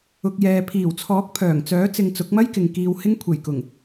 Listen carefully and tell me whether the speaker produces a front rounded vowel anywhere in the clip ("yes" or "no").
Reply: yes